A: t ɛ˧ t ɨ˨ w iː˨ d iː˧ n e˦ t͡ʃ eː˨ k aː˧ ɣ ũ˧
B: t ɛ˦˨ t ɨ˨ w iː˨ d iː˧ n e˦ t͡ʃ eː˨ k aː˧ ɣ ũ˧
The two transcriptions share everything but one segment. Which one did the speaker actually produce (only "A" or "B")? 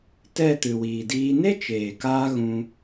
B